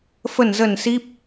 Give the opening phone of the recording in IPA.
f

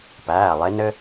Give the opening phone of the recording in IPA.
p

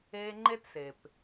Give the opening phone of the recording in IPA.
eː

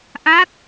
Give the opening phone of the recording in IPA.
ʔ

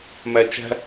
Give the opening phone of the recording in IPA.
m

